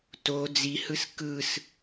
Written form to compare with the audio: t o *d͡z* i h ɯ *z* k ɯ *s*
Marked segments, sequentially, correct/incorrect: correct, incorrect, correct

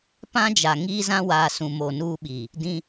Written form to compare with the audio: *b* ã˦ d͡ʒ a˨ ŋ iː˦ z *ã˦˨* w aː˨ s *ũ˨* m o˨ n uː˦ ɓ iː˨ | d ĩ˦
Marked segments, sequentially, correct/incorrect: incorrect, incorrect, correct

